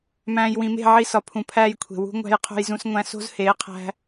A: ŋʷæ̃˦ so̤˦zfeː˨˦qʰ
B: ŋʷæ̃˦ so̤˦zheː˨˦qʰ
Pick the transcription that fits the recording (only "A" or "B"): B